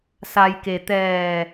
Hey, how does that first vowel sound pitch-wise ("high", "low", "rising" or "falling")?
low